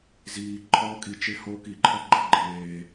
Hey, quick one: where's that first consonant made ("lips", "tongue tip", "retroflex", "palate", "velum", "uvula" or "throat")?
tongue tip